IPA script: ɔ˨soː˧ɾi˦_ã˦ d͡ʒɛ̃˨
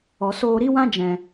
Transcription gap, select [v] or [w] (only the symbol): w